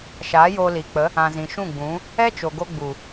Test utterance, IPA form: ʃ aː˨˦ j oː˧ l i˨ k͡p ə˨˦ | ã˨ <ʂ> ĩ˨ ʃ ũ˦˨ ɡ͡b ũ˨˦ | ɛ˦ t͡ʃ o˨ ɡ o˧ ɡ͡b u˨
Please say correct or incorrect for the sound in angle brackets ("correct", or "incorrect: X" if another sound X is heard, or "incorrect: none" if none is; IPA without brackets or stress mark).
incorrect: z